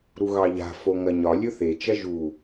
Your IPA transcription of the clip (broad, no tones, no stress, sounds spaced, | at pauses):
ɾ u ɣ ɑ ʎ a̤ f o ŋ ɐ ɲ ɒ lʲ ɵ θ e t͡ʃ ɐ ʒ u